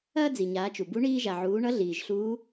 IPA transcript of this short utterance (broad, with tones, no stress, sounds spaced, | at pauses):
ɐː˥ d͡z i˩ ɲ aː˩˧ t͡ʃ u˩ b u˧˥ ɳ iː˧ ʒ a˩ ʕ uː˩˧ ɳ ʌ˧˥ ɮ iː˩ ʒ ɬ uː˧˥